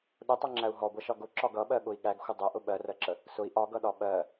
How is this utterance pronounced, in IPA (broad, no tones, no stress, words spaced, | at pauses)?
ɗʊtˤʌŋ͡ǁæu̯ ɦɔɡʷʌʃɒ ɡʊǁɒɡ ʌɓɜɠʊi̯ ɠæɡxʷə dˤɜʔʊ ɓɜrɜǁə | sʊi̯ ʔɒɡʌɗɒ ɓɜ